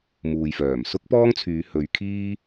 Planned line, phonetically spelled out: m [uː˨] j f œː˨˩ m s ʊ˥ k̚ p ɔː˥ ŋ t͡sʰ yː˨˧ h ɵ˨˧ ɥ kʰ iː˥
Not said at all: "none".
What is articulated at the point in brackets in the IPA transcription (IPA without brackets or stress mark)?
uː˨